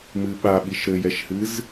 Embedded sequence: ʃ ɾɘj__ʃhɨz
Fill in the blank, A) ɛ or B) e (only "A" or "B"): A